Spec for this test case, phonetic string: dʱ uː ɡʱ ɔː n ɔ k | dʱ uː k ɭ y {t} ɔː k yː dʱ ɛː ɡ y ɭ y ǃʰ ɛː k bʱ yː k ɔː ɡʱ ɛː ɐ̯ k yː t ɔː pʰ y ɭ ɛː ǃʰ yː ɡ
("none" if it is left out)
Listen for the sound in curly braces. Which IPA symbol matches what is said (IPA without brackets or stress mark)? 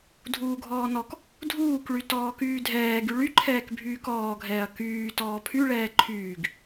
t